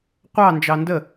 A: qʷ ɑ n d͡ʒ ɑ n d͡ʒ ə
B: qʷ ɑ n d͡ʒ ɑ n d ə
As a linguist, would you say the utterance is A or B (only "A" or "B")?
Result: B